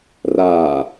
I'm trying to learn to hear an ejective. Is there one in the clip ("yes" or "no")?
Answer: no